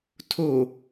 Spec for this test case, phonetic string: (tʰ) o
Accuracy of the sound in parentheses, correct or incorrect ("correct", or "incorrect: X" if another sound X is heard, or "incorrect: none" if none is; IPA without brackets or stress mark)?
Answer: correct